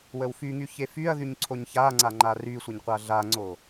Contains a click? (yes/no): yes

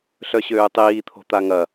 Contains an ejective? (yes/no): no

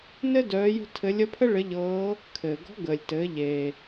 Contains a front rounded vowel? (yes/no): yes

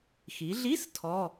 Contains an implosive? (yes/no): no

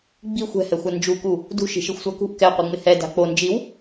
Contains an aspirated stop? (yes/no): no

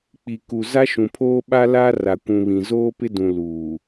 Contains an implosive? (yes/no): yes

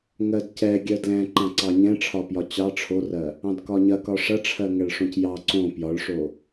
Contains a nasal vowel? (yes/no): yes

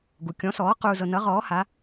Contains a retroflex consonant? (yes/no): no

